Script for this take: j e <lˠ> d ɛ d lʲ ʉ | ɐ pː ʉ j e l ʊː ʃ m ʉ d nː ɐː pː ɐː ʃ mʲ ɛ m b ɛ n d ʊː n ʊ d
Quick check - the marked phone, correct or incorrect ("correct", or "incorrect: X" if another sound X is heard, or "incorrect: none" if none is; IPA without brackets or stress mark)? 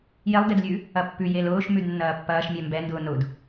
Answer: correct